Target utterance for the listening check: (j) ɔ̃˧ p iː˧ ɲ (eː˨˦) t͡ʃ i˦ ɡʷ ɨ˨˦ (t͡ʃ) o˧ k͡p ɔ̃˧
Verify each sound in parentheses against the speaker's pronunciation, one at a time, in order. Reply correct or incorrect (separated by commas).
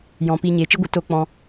correct, correct, incorrect